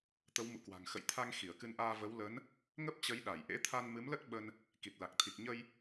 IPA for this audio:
t̪ə˨˦wmṵ˧˨kwa̤˨˩ŋ xə̰˧˨jt̪ʰa˧ŋ xi˧˩ə̯kɨ˧nʔaː˧və˨˦w lə˨˦n | ŋə˦˥p̚t͡ɕə˨˦j ɗa˧˩jʔḛ˧˥t̪ʰa˧n mɨ˨˦mlə˦˥t̚ ɓə˧n | ki˨˩t̚la˨˩k̚t̪ʰi˨˩k̚ ɲə˧j

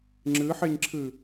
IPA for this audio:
ŋ͡ǁɨħeɲǁʰɨ

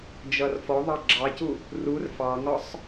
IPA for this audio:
d͡ʒʌrfɔðˤɑ ɡ͡ǁɑcu | rur fɑŋɒsˤ

